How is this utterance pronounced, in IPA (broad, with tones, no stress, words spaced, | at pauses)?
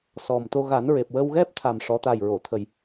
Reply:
sɔ˨˩mt̪o˧ ɣa˨˩˦nɹe˨˩p̚wə˧wɣɛ˦˥p̚ t̪ʰa˨˩mʂɔ˨˩˦ t̪a˨˩jɹo˨˩˨ t̪ʰə˨˩j